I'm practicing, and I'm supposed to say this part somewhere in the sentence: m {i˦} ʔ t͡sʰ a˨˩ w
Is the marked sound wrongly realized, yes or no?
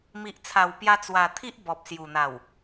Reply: yes